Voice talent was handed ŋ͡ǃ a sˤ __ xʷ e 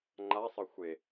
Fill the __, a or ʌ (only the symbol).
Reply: ʌ